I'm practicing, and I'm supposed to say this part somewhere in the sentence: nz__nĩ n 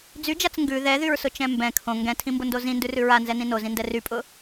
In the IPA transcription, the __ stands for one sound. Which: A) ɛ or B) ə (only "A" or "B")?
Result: A